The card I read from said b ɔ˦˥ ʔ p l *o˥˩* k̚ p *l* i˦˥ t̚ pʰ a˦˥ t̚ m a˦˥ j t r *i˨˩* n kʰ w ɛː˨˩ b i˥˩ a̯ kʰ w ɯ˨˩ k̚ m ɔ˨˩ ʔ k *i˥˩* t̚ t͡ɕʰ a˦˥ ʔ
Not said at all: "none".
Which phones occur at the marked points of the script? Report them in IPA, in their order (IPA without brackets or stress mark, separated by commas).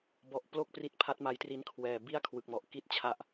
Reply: o˥˩, r, i˧, i˦˥